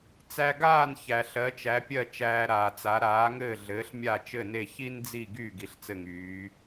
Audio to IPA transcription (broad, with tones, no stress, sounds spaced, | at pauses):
t͡s æ˧ ɡ aː˥˩ n ç æ˩ ɬ ɜ˩˥ t͡ʃ æ˩˥ pʲ ɜ˥˩ t͡ʃ æː˧ ɾ aː˩ t͡s a˩˥ ɾ aː˩˥ ŋ ɘː˥˩ ɮ ɘː˩˥ ɬ mʲ a˥˩ t͡ʃ ɘ˥˩ n e˥˩ ç i˥ n d͡z i˥˩ ɡ y˥˩ ɡ i˩˥ ɬ t͡s ɘ˥˩ ŋ yː˩˥